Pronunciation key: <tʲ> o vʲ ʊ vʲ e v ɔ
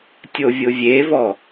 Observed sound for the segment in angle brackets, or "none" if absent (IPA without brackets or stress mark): tʲ